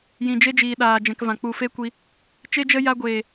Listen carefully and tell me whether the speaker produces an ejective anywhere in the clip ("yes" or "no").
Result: no